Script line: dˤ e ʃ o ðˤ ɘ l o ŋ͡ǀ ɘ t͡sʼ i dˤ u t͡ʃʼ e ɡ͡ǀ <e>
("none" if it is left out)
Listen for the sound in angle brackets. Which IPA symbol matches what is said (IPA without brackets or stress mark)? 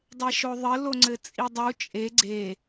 e